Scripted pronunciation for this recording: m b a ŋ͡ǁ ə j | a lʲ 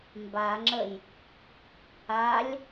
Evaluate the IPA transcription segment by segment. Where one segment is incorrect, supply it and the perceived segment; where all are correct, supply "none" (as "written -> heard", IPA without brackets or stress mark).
none